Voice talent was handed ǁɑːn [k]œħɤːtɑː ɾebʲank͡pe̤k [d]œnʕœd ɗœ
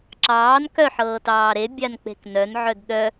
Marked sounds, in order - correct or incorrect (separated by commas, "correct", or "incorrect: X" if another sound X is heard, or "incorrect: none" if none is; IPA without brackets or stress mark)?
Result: correct, incorrect: n